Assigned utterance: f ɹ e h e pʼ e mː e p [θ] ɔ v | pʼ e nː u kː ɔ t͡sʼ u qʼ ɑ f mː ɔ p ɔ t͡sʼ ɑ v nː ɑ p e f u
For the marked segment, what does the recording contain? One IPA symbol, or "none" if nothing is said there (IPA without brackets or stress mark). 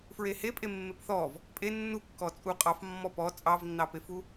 θ